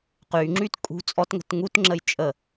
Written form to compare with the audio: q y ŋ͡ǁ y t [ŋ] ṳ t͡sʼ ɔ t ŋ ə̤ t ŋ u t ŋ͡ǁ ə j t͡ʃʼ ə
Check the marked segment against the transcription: incorrect: kʼ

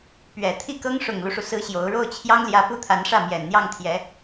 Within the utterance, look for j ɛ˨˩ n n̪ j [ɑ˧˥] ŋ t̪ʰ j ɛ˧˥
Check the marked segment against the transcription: incorrect: ɑ˥˩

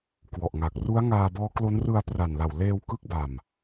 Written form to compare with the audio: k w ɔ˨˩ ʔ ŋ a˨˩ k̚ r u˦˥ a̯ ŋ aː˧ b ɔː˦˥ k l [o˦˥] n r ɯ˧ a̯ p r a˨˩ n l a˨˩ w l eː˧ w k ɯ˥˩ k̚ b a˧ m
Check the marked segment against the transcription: correct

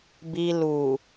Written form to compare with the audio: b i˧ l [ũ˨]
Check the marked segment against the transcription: incorrect: u˨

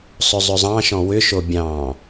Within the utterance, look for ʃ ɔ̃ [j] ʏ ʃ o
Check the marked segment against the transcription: incorrect: w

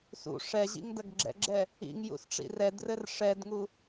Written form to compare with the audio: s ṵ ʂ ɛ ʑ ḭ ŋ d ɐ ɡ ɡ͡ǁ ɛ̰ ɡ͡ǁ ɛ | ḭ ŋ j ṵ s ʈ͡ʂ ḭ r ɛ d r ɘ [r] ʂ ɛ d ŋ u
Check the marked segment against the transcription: correct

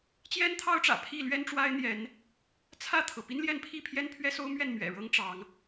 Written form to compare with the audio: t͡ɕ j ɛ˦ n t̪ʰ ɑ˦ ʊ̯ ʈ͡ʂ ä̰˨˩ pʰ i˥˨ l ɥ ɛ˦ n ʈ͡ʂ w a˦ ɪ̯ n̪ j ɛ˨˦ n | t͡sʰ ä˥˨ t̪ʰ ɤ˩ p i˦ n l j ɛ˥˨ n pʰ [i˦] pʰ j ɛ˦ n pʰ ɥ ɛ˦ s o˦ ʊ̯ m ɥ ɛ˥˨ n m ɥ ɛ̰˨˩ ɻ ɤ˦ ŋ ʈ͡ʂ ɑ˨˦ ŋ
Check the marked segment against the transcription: incorrect: i˥˨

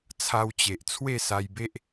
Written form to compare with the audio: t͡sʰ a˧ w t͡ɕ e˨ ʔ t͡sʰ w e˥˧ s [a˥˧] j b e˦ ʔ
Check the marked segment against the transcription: incorrect: a˧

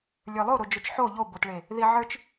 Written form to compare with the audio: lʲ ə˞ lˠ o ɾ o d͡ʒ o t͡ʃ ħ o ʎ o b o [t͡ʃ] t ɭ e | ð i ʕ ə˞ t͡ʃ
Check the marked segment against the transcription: incorrect: none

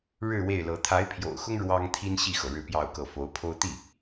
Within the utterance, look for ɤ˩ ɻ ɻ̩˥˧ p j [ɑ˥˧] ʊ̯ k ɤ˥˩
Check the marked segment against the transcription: correct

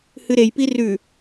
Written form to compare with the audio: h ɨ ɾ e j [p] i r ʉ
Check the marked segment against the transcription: correct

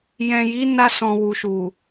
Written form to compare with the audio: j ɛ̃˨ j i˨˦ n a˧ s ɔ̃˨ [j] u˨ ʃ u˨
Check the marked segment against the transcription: incorrect: w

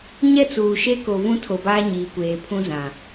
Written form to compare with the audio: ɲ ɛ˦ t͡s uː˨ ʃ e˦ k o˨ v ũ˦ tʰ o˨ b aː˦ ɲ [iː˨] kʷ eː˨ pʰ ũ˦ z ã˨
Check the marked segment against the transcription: correct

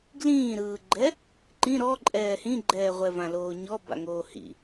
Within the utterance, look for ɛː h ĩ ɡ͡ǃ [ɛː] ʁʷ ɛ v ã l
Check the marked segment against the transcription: correct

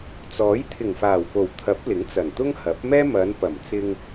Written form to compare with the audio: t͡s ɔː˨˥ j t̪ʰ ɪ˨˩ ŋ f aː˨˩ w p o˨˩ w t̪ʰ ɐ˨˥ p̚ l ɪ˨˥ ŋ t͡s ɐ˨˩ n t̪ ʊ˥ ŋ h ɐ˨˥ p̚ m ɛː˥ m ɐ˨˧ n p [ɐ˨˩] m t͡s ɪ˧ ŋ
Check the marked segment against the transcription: correct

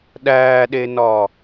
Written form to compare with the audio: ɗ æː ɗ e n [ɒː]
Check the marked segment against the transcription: correct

